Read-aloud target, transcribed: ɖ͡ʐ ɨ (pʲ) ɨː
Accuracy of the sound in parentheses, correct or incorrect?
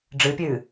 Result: correct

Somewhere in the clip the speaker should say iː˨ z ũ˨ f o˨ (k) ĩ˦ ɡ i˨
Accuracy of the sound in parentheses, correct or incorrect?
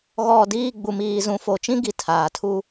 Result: incorrect: t͡ʃ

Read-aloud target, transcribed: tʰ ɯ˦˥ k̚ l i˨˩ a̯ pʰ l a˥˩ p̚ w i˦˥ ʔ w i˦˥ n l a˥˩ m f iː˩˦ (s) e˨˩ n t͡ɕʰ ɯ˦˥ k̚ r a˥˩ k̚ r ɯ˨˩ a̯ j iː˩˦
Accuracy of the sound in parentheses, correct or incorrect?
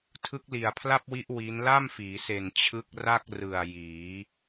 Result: correct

